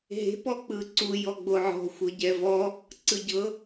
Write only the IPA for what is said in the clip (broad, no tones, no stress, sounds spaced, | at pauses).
ɦ e̤ p ɔ k͡p ɯ ǀ u j ɔ ɡ͡b o ʕ ɔ̤ xʷ ɤ ɟ ɛ v ɔ | ǀ ɯ ɟ ɤ